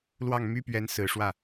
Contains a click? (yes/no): no